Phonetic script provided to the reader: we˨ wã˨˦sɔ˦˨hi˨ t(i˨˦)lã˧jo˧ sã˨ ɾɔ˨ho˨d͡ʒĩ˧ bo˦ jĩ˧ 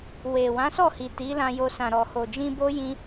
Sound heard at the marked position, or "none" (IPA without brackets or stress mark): i˨˦